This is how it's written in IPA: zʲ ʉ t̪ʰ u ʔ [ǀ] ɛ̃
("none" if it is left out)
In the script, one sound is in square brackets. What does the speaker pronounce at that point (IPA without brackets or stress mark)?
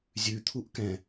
k